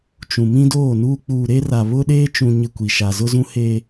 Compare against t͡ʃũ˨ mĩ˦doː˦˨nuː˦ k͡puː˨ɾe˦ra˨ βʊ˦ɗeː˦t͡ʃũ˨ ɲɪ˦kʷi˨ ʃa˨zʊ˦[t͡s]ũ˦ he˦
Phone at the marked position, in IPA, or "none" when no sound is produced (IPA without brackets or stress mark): z